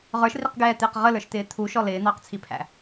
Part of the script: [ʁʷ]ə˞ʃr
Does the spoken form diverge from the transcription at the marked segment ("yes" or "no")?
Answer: yes